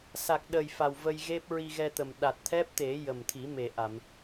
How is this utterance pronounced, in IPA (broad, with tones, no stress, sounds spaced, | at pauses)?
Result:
s a˨˩ k̚ ɗ ə˨˩ j f a˨˩ w v ə˧ j ɣ e˦˥ p̚ ɹ i˧ ɣ ɛ˧ t̪ ə˨˩ m ɗ a˨˩ t̚ t̪ʰ ɛ˦˥ p̚ t̪ e˨˩˦ j ə˨˩ m t̪ʰ i˨˩˦ m e˨˩ ʔ a˨˩˨ m